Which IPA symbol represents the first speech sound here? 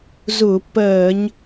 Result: z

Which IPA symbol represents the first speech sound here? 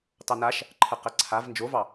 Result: t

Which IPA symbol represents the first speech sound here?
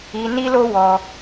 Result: i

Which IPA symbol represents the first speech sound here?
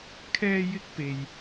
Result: kʰ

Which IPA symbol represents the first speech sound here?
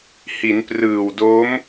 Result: h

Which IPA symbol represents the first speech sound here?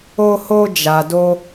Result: o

